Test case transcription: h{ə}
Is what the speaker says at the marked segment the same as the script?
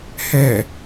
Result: no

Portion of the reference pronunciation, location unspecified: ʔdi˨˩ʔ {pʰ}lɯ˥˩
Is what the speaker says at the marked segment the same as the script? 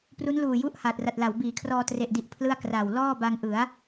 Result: yes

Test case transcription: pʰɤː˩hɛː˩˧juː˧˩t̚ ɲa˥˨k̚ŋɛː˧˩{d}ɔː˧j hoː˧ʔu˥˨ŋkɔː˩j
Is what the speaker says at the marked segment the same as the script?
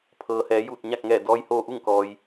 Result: yes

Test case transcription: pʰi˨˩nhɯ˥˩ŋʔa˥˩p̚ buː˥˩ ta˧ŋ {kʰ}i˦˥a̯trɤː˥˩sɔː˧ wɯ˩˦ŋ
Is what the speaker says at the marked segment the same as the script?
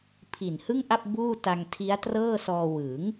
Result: no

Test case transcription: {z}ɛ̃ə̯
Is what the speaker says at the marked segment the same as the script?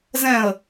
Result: yes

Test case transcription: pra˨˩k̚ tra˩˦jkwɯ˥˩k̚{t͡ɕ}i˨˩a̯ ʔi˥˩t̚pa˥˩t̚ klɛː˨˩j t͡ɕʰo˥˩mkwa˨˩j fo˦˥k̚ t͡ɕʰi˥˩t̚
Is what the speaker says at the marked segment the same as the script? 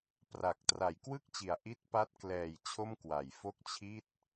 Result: yes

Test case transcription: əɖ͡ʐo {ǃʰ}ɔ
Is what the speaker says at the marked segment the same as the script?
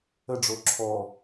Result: no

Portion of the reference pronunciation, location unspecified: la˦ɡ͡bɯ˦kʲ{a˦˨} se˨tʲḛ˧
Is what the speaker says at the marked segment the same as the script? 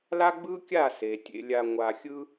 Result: yes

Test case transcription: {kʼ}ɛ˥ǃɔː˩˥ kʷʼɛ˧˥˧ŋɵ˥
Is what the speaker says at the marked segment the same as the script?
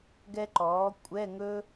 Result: no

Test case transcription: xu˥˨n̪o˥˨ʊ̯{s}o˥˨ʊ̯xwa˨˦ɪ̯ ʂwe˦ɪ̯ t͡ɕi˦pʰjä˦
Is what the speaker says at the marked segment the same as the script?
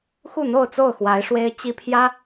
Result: no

